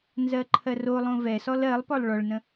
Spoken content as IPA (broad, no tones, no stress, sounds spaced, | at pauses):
n z ɜ ǃʰ ɜ r o lˠ õ v ɛ s ɔ l ɜ lˠ p ɔ lˠ ɭ ɔ ɭ n ə̃